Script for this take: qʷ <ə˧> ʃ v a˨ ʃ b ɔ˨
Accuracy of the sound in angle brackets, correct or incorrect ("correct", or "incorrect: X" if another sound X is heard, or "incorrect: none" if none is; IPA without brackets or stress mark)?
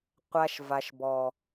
incorrect: a˧